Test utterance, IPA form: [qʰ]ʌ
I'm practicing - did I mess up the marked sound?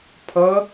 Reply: yes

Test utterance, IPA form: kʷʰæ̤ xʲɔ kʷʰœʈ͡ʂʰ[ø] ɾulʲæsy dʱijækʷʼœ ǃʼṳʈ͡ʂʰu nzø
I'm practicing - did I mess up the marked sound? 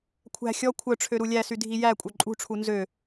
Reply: no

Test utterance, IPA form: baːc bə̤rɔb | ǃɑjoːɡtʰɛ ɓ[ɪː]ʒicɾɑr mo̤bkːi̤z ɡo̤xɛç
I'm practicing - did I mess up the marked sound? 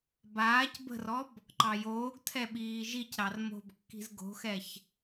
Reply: yes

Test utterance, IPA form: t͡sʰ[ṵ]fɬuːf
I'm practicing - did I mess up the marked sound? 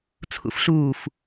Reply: no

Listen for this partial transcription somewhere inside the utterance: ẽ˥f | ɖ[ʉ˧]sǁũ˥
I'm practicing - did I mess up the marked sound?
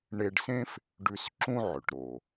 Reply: no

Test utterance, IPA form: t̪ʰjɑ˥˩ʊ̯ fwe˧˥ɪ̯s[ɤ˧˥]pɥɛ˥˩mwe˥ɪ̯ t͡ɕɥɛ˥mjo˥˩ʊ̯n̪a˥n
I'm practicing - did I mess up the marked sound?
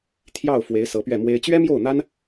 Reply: no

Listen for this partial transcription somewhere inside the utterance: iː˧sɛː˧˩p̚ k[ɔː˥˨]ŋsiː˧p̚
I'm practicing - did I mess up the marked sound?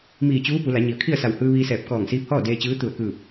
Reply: yes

